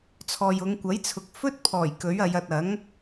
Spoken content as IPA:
t͡sʰ ɔː˨ j ʊ˨˧ ŋ kʷ ɐ˨˥ j t͡sʰ ʊ˨ k̚ f ɵ˥ t̚ pʰ ɔː˨˩ j k ɵ˨˥ ɥ ɐ˨˧ j ɐ˨ t̚ ɐ˨˥ ŋ

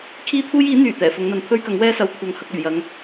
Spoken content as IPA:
kʰ iː˥ t̪ʰ uː˥ j iː˨˥ n̪ yː˨˩ t̪ ɛː˨˩ f ʊ˨˧ ŋ n̪ ɐ˨˧ n pʰ ɵ˥ ɥ k ɐ˨˥ ŋ w ɛː˥ s ɐ˨˧ w kʷʰ ɐ˨ ŋ h ɐ˧ k̚ ɵ˨˩ ɥ j ɐ˨˥ ŋ

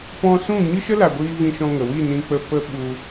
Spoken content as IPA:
p ɔ̃˧ s ũ˦˨ ɲ ɨ˦ ʃ ə˦ l a˨ ɡʷ iː˧ v ĩ˧ ʃ ɔ̃˧ ŋ ə˨ w i˦˨ n ĩ˧ k͡p ə˧ p ə˦ ɓ u˧

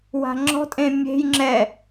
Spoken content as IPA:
w a̤ ŋ͡ǁ ɔ̤ tʼ ẽ mʲ e̤ j ŋ͡ǁ ɛ

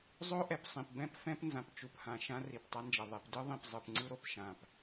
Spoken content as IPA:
zˤ o˦ ʔ ɛ˨ p sˤ ĩ˨ p b ɛ̃˦ p f ɛ̃˦ p n z ã˨ p t͡ʃ u˨ p h ã˨ ʃ ã˦ r i˨ p tˤ a˦ n d͡ʒ ʌ˨ ðˤ e˨ p d ɯ˦ ðˤ ĩ˨ p zˤ ɯ˨ p ŋ͡ǀ ɯ˦ ɾ o˨ p ʃ ã˨ p

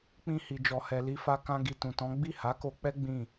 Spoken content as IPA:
k͡p ĩ˧ h i˨ d͡ʒ ɔ˨ h ɛ˨ l i˧ f a˧ k ã˧ ɡ i˨ t ũ˨ t ɔ̃˨˦ ɡ͡b i˦˨ h a˨˦ k o˧ k͡p ɛ˦ ɡ͡b ĩ˦˨

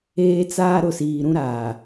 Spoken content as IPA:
eː˦ t͡s aː˦ ɾ ʊ˨ s iː˨ ɾ ũ˦ ɾ aː˨

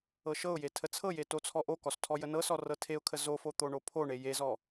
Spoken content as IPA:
ɤ ʃ ɤ ʊ̯ j e tʰ ə t͡sʰ ɤ j e t o t͡sʰ ɔ ʔ o k ɔ s tʰ ɔ j ə n ɤ s ɔ r ɤ tʰ e ʊ̯ kʰ ə z o f o t̪ o ɳ o pʰ o ɳ e j e z ɔ

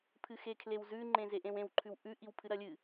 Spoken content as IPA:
pʰ ɨ x e kʰ l e w z ʉ ŋ͡ǃ ẽ z e ʔ ẽ w ẽ w ǃʰ ʉ w ʔ ʉ ʔ i w pʰ ɨ ɾ ɐ lʲ ɨ

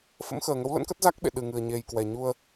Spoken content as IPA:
f ə̰˧˥ m x əː˨˩ ŋ ə˨˦ w l ə̰˧˥ n k ə˦˥ t̚ z a˦˥ k̚ ɓ ḛ˧˨ ɗ ɨ˨˩ ŋ ɨ˨˩ ə̯ ɲ e˨˩ j k w ɛ˨˩ ɲ u˧ ə̯

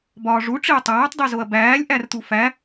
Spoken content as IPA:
b ɒː ʐ u ʈ͡ʂ i ɐ̯ tˤ æː tˤ dˤ i z o ɐ̯ b æː lʲ ʔ æ r t̪ u f æ

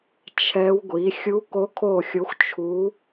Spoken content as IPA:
t͡ʃʰ ɛ˧˥ w ɡʷ i˩˥ xʲ u˧˥ k o˧˥ kʰ o˦˨ xʲ o˧˥ xʷ t͡ʃʰ u˧˥

